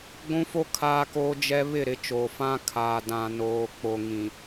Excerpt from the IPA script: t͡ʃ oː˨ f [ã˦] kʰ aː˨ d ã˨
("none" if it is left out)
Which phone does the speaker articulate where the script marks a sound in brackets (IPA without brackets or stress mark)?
ã˦